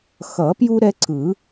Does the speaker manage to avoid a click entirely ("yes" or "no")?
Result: no